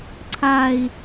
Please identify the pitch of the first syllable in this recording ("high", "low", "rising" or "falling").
falling